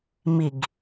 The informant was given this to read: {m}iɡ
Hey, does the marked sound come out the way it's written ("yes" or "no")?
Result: yes